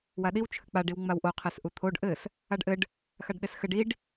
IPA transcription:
w a ɗ i w t͡ʃʰ ɘ k͡p a ɖ i w ŋ͡m a w ʔ o qʰ e s ʔ u t̪ʰ o ɖ ʔ ɘ s | a ɖ ʔ ɘ ɖ | x a ɖ ɗ e s x ɘ ɖ i ɖ

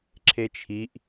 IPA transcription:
ǁʰ e t͡ʃʰ i ʔ

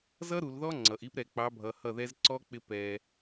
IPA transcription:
z ʌ˦ ɾ u˨ l ð ɔ˦ ŋ͡ǀ ʌ˨ ʔ i˦ p ɾ ɛ˨ k͡p ɑ˨˦ bʱ ʌ˨ h ʌ˦˨ ð ɛ˦ z ǀ ɔ˦ k͡p ɪ˦ p ɛ˦

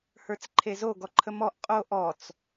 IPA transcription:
h ə˞ t͡s ǃʰ e z o ɡ ɔ ǃʰ ə m ɔ ʔ qʼ o ʔ ɔ t͡s

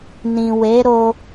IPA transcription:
n ĩ˨ w e˨˦ ɾ o˧

